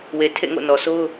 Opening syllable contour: low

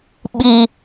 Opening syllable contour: high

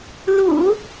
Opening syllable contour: low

